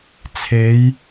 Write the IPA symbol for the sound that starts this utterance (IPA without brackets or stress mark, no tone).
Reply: t͡sʰ